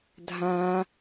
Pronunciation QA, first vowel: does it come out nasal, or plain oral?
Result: nasal